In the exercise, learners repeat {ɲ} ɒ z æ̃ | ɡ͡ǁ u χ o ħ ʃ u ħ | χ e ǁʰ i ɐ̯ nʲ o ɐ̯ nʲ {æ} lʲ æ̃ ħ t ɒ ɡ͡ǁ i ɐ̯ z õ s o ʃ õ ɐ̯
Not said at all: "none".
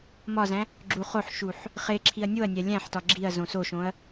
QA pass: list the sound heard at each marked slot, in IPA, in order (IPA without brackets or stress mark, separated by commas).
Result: m, æ